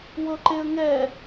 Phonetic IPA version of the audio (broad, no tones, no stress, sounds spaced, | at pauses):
w ɤ ǃ e ə̯ ŋ ɛ